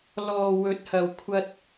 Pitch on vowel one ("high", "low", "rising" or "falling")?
low